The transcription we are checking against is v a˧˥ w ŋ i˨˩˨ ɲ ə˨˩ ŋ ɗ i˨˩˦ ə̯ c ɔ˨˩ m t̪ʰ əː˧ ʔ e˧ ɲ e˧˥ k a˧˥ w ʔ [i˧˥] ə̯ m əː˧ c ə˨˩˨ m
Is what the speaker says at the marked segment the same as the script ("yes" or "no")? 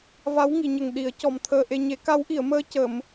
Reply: no